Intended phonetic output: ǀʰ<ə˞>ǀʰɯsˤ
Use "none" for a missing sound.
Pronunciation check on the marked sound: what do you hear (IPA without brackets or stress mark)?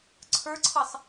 ə˞